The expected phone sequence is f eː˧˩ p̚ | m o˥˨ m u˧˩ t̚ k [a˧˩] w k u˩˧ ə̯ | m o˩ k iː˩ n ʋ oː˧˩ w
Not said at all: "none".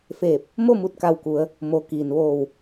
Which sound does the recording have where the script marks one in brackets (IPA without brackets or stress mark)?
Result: a˧˩